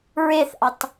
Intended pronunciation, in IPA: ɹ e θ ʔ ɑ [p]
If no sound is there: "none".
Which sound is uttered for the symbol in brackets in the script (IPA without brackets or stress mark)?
t